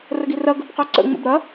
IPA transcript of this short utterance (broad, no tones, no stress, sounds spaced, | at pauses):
r ə ɡ i r ɐ ɡ ə b q œ ǀ ə̰ ŋ͡m ə̰ b ɾ ɐ